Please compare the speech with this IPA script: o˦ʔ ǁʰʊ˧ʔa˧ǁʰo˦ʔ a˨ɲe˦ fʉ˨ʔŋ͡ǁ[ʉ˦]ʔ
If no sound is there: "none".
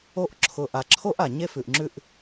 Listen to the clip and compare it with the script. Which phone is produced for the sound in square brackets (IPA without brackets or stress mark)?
ʉ˦